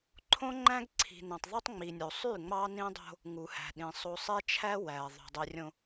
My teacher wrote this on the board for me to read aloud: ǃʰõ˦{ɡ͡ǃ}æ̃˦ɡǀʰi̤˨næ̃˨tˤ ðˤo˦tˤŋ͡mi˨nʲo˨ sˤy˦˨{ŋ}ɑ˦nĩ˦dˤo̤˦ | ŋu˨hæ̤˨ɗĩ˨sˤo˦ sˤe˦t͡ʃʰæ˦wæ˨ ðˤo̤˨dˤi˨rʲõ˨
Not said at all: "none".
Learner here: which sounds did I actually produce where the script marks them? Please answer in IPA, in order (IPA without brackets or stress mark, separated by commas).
ŋ͡ǃ, ŋ͡m